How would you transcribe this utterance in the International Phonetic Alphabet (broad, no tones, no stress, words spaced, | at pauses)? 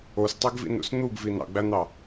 ostˤeɡvḭnṵs n̪uɡvi nɑ̰ɡ͡bæn̪ɑ